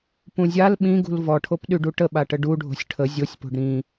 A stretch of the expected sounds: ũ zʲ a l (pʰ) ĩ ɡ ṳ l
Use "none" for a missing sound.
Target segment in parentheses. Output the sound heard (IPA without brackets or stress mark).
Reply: ɓ